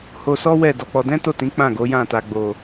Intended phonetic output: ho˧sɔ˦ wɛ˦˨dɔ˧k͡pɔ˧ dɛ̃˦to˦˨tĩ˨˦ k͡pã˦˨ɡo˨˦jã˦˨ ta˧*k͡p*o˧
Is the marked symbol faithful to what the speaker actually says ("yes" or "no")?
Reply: no